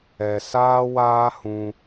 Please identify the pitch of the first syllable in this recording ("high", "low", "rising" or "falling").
low